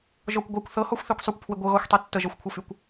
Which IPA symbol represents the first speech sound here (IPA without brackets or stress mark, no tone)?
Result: ʒ